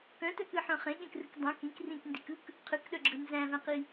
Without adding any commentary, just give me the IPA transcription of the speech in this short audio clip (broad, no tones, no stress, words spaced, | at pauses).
kœ̃tœkɯħœ̃ χẽɠẽkrɯk dˤœ̃k ĩk rĩkndikɯk | qʰɯkɗœɡ͡ǁɯ nzæ̃væ̃qi